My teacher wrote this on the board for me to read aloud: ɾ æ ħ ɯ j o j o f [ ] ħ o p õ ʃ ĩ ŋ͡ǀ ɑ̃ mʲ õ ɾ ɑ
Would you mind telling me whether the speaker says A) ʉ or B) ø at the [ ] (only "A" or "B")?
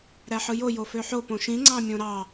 B